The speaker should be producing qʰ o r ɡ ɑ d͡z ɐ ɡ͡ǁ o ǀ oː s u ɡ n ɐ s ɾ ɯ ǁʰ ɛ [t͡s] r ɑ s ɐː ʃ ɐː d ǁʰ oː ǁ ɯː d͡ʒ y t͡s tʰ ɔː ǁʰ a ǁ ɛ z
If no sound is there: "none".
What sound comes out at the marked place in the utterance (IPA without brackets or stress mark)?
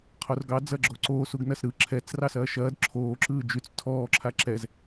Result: t͡s